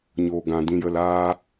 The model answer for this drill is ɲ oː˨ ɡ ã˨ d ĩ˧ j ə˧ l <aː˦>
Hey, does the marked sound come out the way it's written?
yes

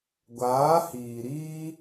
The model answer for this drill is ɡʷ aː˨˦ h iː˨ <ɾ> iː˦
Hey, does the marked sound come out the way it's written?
yes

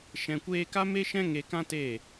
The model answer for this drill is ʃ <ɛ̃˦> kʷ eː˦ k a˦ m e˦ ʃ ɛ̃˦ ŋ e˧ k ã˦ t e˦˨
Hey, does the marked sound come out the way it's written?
no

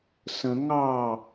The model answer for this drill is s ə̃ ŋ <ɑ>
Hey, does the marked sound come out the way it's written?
yes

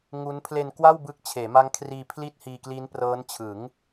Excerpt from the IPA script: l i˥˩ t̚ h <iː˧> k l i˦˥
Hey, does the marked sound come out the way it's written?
yes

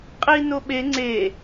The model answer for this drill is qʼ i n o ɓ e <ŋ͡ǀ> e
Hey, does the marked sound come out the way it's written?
yes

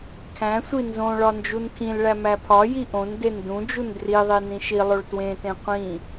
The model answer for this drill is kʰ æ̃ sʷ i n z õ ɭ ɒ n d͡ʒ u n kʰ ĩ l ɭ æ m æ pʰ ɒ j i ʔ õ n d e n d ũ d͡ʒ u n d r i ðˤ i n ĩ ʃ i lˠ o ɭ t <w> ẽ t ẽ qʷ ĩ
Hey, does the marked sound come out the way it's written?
yes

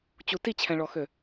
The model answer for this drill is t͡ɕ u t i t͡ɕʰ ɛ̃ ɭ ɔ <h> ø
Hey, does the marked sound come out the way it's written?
no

